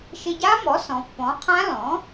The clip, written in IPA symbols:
ʃ ɪ˧ ɟ a˦˥ m ɔ˩˥ s ɔ̃˩˧ pː ɔ̃˩˥ qʰ ã˦˥ l ɔ̃˩˥

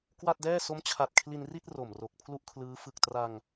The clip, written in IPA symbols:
k w a˥˩ t̚ d ɛː˥˩ s o˦˥ m t͡ɕʰ a˨˩ t̚ kʰ l i˧ n r i˥˩ t̚ r o˨˩ m r o˨˩ k̚ pʰ l u˥˩ ʔ kʰ l ɯː˦˥ f ɯ˨˩ k̚ t r a˧ ŋ

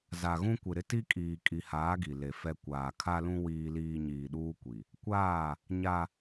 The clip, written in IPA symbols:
z a˨ ɣ ũ˦ kʷ ɪ˨ ɾ ɪ˦ t i˦ kʼ iː˨ kʼ i˨ h aː˨˦ ɡ i˨ l e˨ f ɛ˦ kʷ aː˨ kʰ a˦ l ũ˦ w iː˦ l iː˦ ɲ iː˨ ɗ uː˦ kʷ i˨ | kʷ aː˦˨ | ɲ a˦

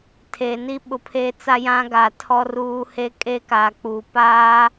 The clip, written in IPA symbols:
tʰ e˨ n i˦ ɓ ʊ˨ pʰ eː˦ t͡s a˦ j ã˦ ɡ aː˨ tʰ ɔ˦ r uː˦ h e˦ kʼ e˦ k aː˨ k͡p uː˨ p aː˦

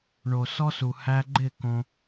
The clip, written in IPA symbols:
ɳ o˨ s ɔ˧ s u˨ h æ˧ ɡ͡ǃ ɪ˦˨ k õ˧

